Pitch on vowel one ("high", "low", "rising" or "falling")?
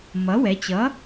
rising